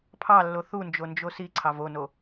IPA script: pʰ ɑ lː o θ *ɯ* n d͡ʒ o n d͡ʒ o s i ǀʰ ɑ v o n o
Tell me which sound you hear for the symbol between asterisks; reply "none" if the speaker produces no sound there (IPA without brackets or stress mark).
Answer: u